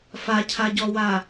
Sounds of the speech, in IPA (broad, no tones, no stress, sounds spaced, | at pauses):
f a cʰ a ɟ ɔ w a